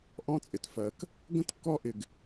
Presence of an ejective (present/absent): present